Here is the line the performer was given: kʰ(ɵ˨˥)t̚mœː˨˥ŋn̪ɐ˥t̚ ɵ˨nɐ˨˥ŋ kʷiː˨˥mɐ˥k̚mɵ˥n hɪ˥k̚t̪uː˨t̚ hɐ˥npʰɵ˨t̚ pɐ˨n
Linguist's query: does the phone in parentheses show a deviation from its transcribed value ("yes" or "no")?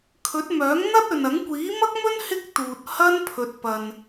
no